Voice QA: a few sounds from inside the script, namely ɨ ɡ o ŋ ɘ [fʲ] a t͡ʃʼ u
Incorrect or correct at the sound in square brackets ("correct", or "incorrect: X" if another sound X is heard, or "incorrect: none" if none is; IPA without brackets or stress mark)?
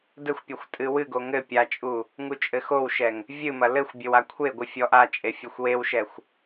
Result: incorrect: pʲ